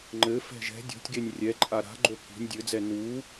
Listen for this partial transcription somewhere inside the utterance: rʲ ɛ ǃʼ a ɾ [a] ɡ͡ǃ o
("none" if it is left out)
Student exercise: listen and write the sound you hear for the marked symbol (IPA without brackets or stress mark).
a̤